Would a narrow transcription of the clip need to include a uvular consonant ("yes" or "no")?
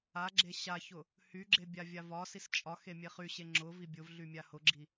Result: yes